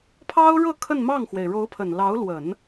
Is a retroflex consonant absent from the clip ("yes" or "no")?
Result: no